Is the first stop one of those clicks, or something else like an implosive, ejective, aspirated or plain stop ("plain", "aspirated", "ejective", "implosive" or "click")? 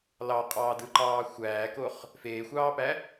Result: ejective